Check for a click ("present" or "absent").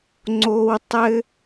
present